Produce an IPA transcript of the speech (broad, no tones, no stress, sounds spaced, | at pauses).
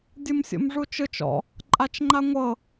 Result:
dʲ ɯ m sʲ o̰ m ʐ u t͡ʃ ɯ t͡ʃ ɔ̰ | ǃʼ a t͡ʃ ŋ͡ǃ a ŋʷ ɤ